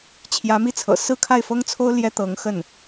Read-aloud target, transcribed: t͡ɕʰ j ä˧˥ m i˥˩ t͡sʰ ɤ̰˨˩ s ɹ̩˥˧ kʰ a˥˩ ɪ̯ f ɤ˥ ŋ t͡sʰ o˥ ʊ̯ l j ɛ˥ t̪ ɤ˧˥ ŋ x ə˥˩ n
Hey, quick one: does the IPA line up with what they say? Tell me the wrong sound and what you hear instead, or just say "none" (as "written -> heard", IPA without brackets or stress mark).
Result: none